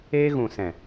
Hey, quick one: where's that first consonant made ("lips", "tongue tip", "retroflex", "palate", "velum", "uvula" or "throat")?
velum